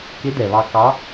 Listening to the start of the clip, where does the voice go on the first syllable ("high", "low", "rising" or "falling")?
rising